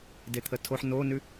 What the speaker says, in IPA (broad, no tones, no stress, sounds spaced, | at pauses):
d e t̪ʰ ə tʰ o ħ n o n ʉ